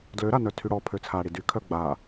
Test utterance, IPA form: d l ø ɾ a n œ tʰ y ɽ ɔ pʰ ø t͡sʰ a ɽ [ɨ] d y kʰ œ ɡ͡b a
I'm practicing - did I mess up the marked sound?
yes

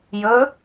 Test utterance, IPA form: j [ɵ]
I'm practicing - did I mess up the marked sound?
no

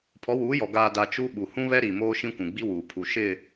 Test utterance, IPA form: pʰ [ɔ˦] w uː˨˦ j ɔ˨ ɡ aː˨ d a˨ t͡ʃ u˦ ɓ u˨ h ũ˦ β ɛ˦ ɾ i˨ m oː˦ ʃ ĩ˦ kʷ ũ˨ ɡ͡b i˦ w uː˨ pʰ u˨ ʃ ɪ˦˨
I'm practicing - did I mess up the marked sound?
yes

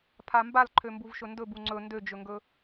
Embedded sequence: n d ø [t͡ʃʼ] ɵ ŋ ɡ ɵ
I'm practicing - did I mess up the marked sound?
yes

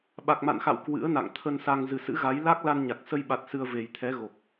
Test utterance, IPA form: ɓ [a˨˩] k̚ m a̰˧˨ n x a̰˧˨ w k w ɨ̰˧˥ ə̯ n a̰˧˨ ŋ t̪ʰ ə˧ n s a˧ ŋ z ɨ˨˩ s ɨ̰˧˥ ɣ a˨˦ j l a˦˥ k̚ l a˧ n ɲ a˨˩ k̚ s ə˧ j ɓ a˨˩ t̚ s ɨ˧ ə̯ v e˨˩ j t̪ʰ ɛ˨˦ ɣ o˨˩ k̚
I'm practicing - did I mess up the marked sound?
no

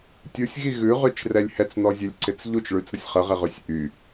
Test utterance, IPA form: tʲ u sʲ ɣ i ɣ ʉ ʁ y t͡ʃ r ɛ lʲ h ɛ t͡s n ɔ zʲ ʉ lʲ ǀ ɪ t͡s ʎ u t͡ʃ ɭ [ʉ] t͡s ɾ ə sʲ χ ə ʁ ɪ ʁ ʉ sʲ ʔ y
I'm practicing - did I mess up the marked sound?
no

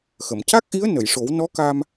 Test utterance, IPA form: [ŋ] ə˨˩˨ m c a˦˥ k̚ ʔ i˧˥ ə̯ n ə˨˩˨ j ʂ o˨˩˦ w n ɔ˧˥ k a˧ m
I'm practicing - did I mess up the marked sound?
yes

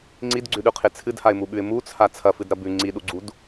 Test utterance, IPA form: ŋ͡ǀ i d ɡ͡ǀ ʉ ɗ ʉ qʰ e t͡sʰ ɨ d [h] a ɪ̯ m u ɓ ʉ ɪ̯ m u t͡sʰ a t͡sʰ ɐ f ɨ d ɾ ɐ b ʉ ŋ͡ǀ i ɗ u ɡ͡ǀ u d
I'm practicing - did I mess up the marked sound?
no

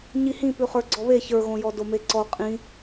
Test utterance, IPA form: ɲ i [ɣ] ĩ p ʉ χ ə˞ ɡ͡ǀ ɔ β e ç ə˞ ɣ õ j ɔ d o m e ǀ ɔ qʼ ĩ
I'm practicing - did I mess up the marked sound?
yes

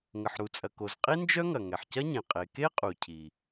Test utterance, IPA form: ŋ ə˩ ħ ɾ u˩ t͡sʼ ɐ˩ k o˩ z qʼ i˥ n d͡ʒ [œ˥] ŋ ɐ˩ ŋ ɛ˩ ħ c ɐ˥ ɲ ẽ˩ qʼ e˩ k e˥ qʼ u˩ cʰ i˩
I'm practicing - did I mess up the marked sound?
no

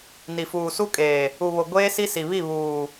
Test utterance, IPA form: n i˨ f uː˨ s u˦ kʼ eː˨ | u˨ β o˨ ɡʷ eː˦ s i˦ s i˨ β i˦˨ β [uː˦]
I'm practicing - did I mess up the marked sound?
yes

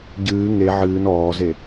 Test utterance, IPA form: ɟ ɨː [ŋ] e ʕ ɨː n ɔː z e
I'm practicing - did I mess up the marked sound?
no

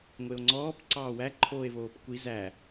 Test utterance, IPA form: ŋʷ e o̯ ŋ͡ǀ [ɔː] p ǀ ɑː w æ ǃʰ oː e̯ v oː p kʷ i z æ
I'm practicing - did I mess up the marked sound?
no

